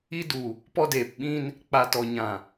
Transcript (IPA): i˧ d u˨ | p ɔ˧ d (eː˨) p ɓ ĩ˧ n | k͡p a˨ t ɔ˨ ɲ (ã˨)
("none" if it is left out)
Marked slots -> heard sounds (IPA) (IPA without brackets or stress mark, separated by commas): eː˨, ã˨